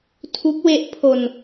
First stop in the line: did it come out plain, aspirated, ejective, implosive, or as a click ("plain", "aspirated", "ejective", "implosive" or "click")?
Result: aspirated